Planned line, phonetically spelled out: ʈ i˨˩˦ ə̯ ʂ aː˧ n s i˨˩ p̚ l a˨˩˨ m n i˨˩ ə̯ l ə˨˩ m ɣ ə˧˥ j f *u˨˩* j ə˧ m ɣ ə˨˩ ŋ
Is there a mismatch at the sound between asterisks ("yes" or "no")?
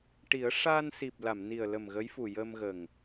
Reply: no